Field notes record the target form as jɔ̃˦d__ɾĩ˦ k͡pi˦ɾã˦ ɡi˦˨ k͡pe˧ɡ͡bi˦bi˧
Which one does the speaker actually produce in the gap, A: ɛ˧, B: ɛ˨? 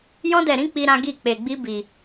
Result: A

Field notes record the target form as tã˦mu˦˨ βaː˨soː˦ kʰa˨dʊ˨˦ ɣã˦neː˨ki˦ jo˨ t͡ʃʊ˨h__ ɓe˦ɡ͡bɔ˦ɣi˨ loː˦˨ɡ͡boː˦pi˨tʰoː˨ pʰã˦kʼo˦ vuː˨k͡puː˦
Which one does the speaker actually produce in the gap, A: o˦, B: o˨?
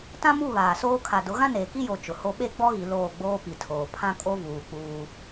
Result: A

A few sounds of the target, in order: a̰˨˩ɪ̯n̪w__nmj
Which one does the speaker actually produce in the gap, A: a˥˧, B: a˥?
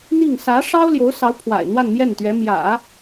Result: A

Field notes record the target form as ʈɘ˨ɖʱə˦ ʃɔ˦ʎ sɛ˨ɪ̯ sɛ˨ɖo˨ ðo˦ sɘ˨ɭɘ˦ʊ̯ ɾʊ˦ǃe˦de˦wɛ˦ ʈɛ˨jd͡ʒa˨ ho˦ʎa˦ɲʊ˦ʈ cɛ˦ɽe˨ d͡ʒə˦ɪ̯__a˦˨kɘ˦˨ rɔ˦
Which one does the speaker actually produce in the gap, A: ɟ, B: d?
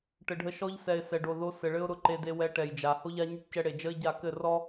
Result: A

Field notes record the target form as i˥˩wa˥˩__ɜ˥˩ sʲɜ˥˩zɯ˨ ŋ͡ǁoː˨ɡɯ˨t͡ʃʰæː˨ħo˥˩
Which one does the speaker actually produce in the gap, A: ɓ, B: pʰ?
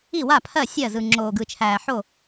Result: B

